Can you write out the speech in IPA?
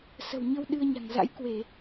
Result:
s ə̤˨˩ w ɲ ə˧ w ɗ ɨ˧ ə̯ ɲ a̤˨˩ ŋ z a̰˧˥ j k w e˧˩˨

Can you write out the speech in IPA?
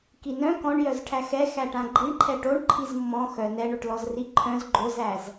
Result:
k i n œ̃ k ɔ̃ ɳ j œ z ʈʰ æ x ɛ x æ ʈ ã ɡ͡ǃ i ɳ ǃʰ ɛ ʈ o ɳ ǃʰ i z mː ɔ̃ x œ n ɛ ɳ o ʈ l ɔ z r i ǃʰ œ̃ z ɡ͡ǃ o z æ z

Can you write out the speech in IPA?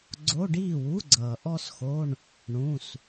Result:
ɡ͡ǀ o˧˥˧ ɖ iː˥˩ w u˧˥˧ ɡ͡ǀ ʌː˩ ʔ ɔ˥ s x o˧˥˧ ɳ | ɳ ũ˩˧˩ s

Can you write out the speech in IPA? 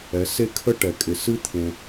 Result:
ɛ˩˧ s e˥ kʰ ə˥ ʈ ɛ˩ kʼ ɪ˩ s ɨ˥ t̪ʰ ẽ˩

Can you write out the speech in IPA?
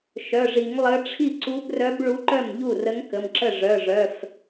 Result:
ʃ œ˩˧˩ ʐ i˨˩˦ ŋ lˠ ə˧˥ ʈ͡ʂʰ i˥˩ ǀ u˧˥ b r œ˧˥ b ɭ u˧˥ ǃ œ˥˩ m ʎ u˥˩ r ə˧˥ ŋ k ə˩˧˩ m ǁ ə˥˩ ʐ œ˩˧˩ ʐ œ˩˧˩ f

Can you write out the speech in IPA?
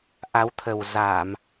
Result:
ʔ a˨˦ w t̪ʰ ə˨˩ w z aː˧˩˨ m

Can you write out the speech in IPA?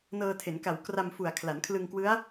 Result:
n ɤː˧ tʰ e˩˦ n k a˨˩ w k r a˧ m f u˨˩ a̯ kʰ l a˩˦ n kʰ l ɯ˧ ŋ k w ɯ˦˥ a̯

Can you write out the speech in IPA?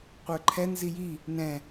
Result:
qʷ ə˞ ǃʰ ɛ n z i j i | n ɛ̃

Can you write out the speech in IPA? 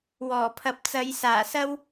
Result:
w ɔː˨˩ pʰ ɐ˨ p̚ t͡s ɐ˨˧ j s aː˨˩ s ɐ˥ w

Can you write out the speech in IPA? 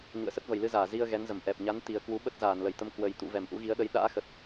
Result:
ɲ ṵ˧˨ ə̯ s ə˦˥ t̚ v ə˨˩ j l ɨ˧ z aː˧˩ z i˧ ə̯ ɣ ɛ˨˦ n z ə˧˩ m ʔ ɛ˨˩ p̚ ɲ a˨˦ n t̪ i˨˩ ə̯ k w u˨˦ ɓ ə˦˥ t̚ z aː˧˩ n l ə˧˩ j t̪ ə˧ m k w ə˨˩ j t̪ ṵ˧˨ v ɛ˧˩ m ʔ ṵ˧˥ ɣ i˨˦ ə̯ ɗ ə˨˦ j ɗ a̰ː˧˥ x ə˨˩ t̚

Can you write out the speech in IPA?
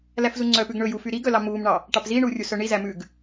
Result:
l æ f z u ŋ͡ǀ œ p ʉ ɡ ɳ ɵ j u f y ɾ i ɡ œ l ɑ m uː m ɳ ɑ | ʈ ɑ p z i ɳ uː rʲ u s œ ɳ i z æ m ʉː ɡ

